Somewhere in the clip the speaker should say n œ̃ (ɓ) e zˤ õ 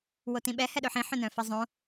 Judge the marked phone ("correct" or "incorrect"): incorrect